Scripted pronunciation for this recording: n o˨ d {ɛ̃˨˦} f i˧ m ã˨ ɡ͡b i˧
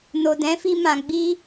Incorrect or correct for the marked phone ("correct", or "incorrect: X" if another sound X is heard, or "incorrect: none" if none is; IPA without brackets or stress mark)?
correct